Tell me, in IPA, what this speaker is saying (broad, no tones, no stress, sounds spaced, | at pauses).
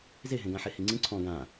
z e ɦ ẽ ɡ ã ħ e h i ŋ͡ǀ ĩ ǀʰ ɔ̃ ɡ ã